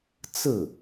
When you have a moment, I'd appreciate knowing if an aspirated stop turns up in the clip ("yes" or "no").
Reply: no